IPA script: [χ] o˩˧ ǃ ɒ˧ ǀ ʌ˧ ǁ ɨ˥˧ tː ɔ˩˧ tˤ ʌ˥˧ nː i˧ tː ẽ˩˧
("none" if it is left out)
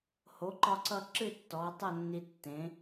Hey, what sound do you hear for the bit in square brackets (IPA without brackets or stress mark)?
h